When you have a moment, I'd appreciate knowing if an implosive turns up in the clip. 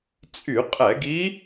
no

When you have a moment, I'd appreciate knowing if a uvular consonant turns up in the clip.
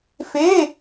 no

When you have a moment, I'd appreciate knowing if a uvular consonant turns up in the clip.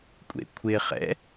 yes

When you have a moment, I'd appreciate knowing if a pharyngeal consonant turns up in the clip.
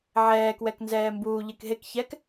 yes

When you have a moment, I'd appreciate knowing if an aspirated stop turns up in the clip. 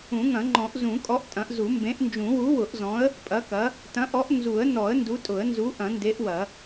no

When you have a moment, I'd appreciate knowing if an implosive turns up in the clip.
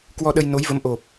yes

